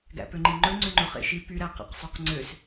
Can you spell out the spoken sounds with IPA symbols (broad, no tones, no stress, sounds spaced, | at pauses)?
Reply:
ɡ æ̰ p ø ŋ͡ǃ i ŋ͡ǃ ɵ ŋ͡ǀ ø ŋ͡ǃ ɵ χ ḛ ʃ i p y ɾ æ q æ̰ q sˤ y q ŋ͡ǀ ø s